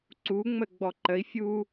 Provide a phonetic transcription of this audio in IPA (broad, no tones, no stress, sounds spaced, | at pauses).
ǀ u ŋ͡m ə ɡ͡b ɔ ǃ ə i̯ fʲ u